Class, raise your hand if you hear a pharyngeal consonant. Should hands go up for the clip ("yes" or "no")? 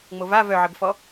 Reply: yes